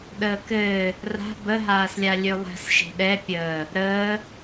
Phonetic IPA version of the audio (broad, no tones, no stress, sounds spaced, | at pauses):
ɗ əː k ɘː | r a̤ b ə ɦ aː s lʲ a lʲ ø lˠ ɛ̤ s ʃ e̤ ɗ ɛ pʲ əː | ɾ əː